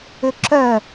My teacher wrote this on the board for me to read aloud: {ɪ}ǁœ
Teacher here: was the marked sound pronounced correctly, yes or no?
no